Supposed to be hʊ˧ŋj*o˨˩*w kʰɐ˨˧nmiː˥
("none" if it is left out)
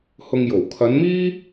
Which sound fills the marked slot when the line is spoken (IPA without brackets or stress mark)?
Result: o˨˩